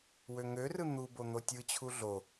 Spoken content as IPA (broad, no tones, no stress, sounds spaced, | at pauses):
w ø ŋ ø r ɯ n̪ u b o n̪ o tʲ ɯ t͡ɕʰ u ɮ o